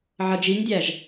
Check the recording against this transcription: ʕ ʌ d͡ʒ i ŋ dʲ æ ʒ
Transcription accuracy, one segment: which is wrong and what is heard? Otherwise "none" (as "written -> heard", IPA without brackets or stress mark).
none